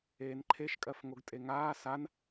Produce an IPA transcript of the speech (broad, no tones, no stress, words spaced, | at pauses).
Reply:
eːnǃʰeʃkʼɜfŋoɡ tʼeŋaː san